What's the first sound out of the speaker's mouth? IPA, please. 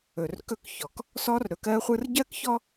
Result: ɵ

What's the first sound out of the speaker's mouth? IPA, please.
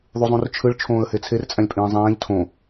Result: ðˤ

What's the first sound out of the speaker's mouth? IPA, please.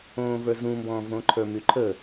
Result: õː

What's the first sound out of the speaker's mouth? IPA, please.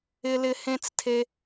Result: ɪ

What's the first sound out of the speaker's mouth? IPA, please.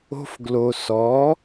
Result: o̤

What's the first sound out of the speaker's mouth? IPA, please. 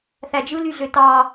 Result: θ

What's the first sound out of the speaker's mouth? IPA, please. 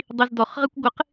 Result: dˤ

